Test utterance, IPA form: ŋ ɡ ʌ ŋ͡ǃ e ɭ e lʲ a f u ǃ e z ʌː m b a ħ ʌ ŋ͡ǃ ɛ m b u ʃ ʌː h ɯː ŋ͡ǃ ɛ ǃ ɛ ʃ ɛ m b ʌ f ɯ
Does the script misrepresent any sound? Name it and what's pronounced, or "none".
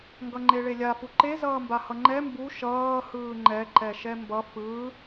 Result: ħ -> h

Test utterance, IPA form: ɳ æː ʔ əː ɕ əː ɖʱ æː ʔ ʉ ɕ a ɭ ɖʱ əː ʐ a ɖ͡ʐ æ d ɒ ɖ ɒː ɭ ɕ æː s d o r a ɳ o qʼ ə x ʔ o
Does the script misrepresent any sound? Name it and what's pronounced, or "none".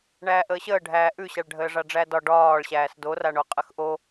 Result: none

